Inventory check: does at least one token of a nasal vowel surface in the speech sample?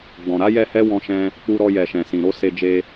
yes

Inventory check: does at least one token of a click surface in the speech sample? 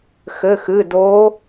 no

